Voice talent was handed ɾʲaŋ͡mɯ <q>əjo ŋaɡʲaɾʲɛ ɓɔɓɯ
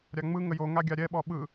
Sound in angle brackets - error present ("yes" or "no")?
yes